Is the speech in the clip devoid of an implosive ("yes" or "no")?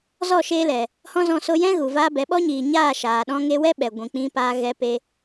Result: no